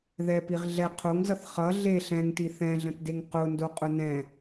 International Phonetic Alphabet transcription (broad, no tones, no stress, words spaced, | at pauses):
ðɛpiʁ ɮɛ qʰoŋzʌθ χʌ ɮe ɬɛ̃ŋti θɛ̃ɮə̃tdeŋ qʊndoqʼʊ nɛ̃